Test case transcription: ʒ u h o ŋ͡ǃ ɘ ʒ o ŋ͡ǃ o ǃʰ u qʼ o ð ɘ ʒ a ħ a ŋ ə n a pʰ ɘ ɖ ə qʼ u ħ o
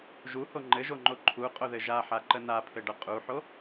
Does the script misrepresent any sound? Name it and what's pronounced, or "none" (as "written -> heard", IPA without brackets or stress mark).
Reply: ŋ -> ǃ